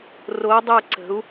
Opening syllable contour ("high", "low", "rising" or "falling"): rising